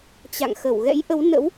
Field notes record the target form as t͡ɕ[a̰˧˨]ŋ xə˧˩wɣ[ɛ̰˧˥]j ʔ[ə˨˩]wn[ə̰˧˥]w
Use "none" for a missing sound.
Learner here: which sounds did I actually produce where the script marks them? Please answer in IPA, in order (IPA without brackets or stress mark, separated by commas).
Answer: a̰˧˨, ɛ̰˧˥, ə˨˦, ə̰˧˥